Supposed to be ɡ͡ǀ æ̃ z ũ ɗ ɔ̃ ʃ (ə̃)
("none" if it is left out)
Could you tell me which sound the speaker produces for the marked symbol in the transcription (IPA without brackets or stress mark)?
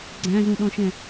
ɛ̃